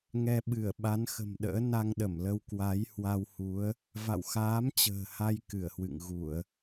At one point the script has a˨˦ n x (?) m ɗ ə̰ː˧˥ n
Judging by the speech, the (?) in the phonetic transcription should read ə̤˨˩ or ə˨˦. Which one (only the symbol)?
ə̤˨˩